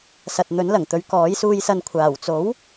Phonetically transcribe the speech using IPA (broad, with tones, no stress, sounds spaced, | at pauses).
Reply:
s ɐ˨ t̚ n̪ ɵ˨˥ n l ɐ˨˩ ŋ t̪ ɵ˨˧ ɥ k ɔː˨˥ j s uː˧ j s ɐ˧ n kʷʰ aː˨˩ w t͡s o˨˥ w